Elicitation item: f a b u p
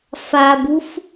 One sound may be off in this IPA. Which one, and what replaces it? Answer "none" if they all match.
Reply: p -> f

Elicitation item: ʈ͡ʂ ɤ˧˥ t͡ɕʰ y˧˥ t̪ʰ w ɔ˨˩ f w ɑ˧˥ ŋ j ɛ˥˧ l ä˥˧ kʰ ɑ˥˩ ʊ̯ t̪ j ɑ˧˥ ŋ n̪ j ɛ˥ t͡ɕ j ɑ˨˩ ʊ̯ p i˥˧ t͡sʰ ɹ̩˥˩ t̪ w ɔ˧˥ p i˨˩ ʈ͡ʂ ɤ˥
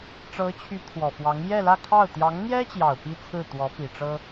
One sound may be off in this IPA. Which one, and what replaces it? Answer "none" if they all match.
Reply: none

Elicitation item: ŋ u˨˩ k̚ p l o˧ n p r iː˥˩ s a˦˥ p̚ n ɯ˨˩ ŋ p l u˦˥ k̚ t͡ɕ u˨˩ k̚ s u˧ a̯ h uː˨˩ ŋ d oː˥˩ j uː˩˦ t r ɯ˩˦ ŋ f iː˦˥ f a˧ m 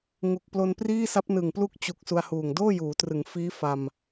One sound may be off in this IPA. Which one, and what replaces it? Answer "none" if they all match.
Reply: none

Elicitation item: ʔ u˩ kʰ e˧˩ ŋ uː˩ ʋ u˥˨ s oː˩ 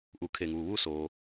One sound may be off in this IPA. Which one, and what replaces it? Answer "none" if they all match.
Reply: none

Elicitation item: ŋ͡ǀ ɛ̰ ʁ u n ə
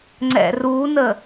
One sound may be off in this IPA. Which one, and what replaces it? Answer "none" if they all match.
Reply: ʁ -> r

